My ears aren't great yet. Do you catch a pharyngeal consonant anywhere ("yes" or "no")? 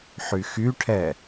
yes